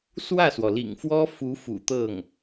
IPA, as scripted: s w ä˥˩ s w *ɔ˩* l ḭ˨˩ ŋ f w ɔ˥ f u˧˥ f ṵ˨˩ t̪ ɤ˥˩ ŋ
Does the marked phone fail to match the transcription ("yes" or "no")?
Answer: no